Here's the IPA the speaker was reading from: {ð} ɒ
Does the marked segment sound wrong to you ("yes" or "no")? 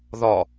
no